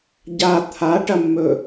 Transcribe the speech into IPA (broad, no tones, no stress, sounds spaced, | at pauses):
ɟ a t̪ʰ a ʈ ɐ mː ɵ